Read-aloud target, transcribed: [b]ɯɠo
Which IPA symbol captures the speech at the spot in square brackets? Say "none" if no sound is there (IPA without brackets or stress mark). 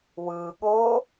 w